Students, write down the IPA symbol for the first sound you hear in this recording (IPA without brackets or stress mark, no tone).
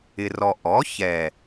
ɪ